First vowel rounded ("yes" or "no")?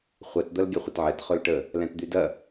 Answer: no